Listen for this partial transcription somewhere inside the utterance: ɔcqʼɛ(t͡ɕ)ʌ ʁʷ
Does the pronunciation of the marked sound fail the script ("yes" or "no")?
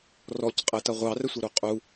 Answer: yes